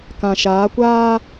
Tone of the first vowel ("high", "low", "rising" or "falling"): low